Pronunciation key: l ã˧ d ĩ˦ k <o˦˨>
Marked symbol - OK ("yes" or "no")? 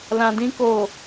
yes